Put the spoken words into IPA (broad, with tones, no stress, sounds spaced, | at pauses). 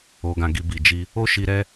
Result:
o˧ ɡ ã˧ ɡ i˧ b i˨ d͡ʒ i˧ | o˦ ʃ i˧ ɾ ɛ˦